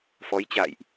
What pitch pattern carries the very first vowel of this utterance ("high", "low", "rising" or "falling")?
rising